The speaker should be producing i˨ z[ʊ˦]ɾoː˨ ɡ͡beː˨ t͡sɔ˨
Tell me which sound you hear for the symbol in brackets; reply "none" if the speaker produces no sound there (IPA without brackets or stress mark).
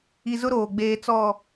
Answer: ʊ˦